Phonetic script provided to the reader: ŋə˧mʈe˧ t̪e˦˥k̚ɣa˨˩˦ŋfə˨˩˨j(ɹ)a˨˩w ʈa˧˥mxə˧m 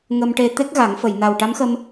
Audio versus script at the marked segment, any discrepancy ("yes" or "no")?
yes